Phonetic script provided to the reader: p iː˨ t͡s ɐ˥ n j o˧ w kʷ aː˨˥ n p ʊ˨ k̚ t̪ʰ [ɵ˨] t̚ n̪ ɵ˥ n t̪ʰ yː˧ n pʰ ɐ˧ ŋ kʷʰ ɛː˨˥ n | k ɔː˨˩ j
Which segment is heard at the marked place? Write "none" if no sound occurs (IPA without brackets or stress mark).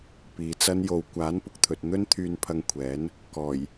ɵ˨